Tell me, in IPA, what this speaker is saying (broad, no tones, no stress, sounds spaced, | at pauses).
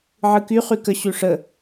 ʕ ɯ k y χ y k ə ɕ ʉ ʂ ə